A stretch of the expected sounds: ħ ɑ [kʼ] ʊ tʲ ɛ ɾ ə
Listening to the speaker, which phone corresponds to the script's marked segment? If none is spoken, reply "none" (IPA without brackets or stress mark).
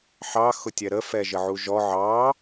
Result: x